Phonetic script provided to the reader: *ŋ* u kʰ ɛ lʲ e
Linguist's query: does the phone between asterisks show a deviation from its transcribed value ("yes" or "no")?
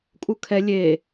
yes